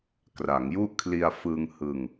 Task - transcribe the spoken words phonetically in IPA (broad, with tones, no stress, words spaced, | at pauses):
kra˩˦ŋju˥˩ʔkʰli˧a̯ fɯ˧ŋ hɯ˧ŋ